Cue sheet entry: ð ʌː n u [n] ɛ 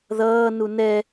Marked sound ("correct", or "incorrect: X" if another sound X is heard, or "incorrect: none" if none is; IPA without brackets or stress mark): correct